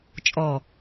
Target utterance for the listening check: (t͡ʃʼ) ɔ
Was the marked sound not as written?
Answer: no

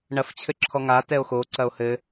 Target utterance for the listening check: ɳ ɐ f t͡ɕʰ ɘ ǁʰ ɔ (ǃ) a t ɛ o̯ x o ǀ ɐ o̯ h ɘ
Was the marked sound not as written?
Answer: yes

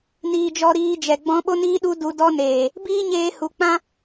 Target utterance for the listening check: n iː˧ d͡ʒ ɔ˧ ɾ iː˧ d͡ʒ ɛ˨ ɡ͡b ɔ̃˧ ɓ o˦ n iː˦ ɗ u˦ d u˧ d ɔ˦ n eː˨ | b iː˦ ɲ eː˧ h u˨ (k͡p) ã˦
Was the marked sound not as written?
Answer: no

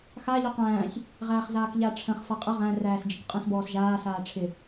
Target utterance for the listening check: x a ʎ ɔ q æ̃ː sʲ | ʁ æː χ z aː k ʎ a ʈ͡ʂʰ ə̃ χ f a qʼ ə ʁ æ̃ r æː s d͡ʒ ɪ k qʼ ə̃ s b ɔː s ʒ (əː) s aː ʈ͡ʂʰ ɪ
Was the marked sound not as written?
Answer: yes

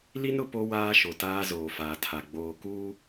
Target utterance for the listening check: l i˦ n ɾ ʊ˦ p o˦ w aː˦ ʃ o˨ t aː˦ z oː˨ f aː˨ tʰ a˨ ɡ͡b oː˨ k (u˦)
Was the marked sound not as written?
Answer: yes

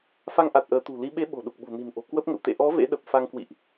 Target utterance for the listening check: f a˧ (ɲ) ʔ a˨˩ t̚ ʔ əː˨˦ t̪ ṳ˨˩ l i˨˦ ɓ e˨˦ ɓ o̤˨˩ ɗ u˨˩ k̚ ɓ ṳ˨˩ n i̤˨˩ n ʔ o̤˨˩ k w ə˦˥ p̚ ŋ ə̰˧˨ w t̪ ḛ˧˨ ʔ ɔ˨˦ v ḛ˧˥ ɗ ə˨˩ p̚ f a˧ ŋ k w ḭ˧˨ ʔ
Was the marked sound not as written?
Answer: yes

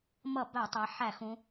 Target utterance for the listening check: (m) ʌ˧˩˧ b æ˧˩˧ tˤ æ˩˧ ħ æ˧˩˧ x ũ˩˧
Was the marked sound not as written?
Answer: no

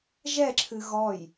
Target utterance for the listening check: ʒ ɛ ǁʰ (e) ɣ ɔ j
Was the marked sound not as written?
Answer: yes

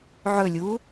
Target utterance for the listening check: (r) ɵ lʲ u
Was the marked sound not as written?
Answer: yes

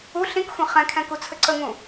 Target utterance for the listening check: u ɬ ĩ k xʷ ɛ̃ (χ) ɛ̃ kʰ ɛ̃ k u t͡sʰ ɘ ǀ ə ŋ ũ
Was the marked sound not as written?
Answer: no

